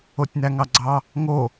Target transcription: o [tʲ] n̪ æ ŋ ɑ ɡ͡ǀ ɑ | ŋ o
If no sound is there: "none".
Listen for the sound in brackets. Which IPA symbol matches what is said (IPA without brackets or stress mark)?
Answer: tʲ